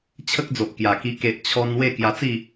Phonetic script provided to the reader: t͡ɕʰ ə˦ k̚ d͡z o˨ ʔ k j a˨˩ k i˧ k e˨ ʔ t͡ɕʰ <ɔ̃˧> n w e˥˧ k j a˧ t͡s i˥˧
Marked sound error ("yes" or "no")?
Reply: yes